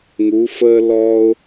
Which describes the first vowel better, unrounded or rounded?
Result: rounded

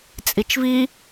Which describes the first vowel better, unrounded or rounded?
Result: unrounded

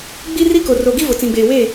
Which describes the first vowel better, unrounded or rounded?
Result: unrounded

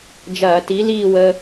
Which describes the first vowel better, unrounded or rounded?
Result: unrounded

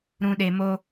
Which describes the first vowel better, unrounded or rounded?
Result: rounded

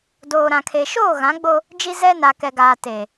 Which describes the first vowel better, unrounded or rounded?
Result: rounded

